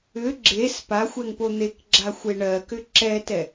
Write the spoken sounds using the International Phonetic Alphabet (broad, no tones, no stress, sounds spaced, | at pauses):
ʏ ɡ͡ǁ e s p a xʷ ɛ ŋ p o n̪ e k ɡ͡ǁ a xʷ e ɳ ɜ k ʏ ǁ ɛ t ɛ